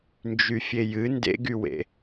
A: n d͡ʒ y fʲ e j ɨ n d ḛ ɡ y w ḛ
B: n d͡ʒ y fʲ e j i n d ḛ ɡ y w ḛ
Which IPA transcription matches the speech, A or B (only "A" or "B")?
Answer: A